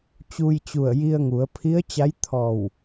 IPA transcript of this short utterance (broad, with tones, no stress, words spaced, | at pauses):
t͡ɕu˧jt͡ɕu˧˩ə̯ji˧ə̯ŋu˩˧ə̯ pʰi˧˥ə̯t͡ɕa˧˥jt̪ʰɔː˧˩w